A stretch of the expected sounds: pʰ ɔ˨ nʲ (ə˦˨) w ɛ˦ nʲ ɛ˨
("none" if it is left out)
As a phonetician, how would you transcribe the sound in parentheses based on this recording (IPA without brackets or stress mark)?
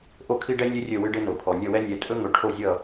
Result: ʌ˦˨